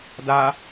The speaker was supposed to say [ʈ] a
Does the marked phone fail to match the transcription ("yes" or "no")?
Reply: yes